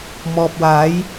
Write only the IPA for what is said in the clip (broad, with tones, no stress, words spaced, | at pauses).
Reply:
mɔː˨p̚waː˨˥j